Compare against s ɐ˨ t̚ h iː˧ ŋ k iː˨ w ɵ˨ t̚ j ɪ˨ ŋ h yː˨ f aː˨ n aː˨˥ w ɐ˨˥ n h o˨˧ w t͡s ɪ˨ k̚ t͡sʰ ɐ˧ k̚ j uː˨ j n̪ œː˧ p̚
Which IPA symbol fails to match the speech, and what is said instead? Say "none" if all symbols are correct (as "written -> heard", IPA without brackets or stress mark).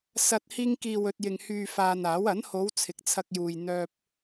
t͡s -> t͡sʰ